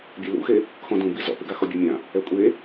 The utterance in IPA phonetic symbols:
bʲ e l ṵ x e | x ɔ̃ d ũ b i z ɔ̰ p ɪ ɡ a x ɔ bʲ e mʲ ã | ɛ kʷʼ e

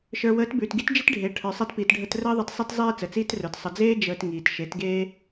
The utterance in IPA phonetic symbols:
ʃ ə˞˨ w əː˨˦ t b ʉː˨ t ɡ i˦ t d͡ʒ i˦ t ɖʱ eː˨ ʈʰ ə˞˨ sˤ e˧ t p iː˨ t ɖʱ ə˧ t r əː˦ ðˤ ə˧ t sˤ i˧ t zˤ iː˧ t͡s ə˨ t͡s iː˦ t r ə˞˨ t sˤ ə˨ d͡z eː˦ d͡ʒ əː˧ t ŋ iː˨ t ʃ e˨˦ t ɡ eː˦

